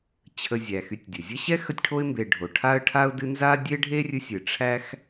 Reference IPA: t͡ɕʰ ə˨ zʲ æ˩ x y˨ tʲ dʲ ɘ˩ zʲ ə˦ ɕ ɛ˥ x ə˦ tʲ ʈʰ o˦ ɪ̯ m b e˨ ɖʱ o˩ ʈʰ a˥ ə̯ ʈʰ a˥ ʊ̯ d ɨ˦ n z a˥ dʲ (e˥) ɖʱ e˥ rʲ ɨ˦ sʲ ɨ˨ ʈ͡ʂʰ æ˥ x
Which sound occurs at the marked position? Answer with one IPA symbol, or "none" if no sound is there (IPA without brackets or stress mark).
e˥